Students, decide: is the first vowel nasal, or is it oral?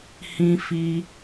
nasal